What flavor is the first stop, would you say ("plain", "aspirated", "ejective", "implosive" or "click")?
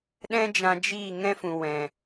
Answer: implosive